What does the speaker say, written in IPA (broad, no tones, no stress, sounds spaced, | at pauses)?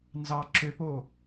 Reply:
n z ɑ ǁ ø p o